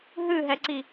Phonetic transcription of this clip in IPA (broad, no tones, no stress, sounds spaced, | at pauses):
ɦ ɨ ɦ ɛ ǀ i